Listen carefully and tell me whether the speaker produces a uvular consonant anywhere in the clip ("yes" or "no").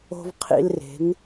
yes